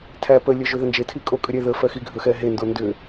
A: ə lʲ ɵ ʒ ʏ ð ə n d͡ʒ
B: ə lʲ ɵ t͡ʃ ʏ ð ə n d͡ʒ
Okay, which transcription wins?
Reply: A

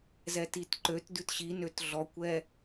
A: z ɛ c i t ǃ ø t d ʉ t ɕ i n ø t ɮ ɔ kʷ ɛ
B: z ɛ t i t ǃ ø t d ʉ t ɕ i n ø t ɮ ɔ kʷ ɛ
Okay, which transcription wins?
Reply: B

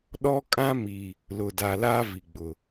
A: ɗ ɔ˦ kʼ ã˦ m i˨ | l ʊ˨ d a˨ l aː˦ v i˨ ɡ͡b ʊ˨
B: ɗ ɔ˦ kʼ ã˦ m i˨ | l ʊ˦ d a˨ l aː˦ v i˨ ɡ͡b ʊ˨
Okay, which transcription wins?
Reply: A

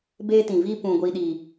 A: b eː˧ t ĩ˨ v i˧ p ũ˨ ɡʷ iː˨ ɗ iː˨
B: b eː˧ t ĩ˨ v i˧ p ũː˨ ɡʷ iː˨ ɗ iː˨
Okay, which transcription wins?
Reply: A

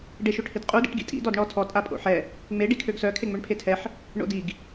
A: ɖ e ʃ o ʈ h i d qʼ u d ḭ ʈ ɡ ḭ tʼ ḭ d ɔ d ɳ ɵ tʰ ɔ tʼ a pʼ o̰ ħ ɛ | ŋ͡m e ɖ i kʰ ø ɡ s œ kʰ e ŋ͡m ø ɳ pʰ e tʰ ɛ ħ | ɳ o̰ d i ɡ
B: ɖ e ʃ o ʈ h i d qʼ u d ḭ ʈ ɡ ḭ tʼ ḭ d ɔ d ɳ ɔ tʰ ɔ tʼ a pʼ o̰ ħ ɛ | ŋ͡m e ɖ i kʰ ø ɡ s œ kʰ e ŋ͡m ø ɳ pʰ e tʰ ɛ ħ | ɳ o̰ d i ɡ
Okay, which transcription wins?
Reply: B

